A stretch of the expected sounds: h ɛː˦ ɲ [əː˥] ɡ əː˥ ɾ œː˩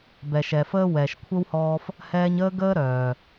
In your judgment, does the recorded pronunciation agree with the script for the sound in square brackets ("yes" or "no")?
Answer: yes